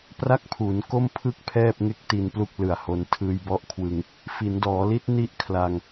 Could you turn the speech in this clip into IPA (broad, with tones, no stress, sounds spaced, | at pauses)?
p r a˥˩ k̚ pʰ uː˩˦ n k o˥˩ m pʰ ɯ˥˩ k̚ pʰ ɛː˥˩ p̚ ŋ e˥˩ k̚ t i˧ n p l u˥˩ k̚ l ɯ˨˩ a̯ h o˧ n tʰ ɯː˧ j b ɔ˦˥ ʔ kʰ w ɯ˧ ŋ | f i˩˦ n d ɔː˩˦ l i˦˥ t̚ n i˦˥ ʔ kʰ l a˧ ŋ